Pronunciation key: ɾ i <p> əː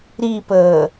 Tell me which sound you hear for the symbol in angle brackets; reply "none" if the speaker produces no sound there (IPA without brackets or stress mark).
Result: p